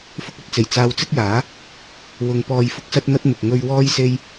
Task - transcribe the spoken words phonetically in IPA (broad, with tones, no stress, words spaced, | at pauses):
fʊ˧k̚ɐ˨t̚t͡se˨˩j t͡saː˧wt͡sɪ˥k̚jaː˨˥ | wʊ˨ŋ pɔː˨jfʊ˧k̚sɐ˧t̚n̪ɐ˧t̚ mɪ˨k̚ ŋɵ˧ɥ wɔː˥jse˥j